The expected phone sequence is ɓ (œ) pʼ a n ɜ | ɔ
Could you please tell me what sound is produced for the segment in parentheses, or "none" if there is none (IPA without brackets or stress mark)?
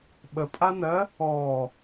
ə